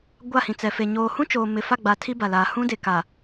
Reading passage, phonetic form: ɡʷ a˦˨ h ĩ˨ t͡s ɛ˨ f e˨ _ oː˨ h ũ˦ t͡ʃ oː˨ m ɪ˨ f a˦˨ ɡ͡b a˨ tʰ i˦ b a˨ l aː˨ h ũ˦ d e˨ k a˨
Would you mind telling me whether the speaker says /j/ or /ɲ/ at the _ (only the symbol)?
ɲ